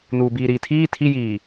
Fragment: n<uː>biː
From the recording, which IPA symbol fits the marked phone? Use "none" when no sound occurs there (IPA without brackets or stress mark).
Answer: uː